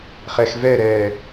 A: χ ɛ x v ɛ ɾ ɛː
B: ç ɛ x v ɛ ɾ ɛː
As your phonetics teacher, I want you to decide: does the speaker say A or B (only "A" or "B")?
A